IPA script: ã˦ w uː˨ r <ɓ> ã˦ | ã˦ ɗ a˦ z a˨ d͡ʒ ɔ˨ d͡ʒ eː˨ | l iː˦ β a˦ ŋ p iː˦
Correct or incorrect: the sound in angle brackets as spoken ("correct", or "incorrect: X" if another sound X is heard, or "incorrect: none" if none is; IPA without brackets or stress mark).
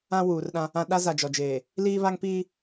incorrect: ɗ